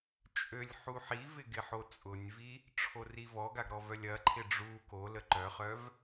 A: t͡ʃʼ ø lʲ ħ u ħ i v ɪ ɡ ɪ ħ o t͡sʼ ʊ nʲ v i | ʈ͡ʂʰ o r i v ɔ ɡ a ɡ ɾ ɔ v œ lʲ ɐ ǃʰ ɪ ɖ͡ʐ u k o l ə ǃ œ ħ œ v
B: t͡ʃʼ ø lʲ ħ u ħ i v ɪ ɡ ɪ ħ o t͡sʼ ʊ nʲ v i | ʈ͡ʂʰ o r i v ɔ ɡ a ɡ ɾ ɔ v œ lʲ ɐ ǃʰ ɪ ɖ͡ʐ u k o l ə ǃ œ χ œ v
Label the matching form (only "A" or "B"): B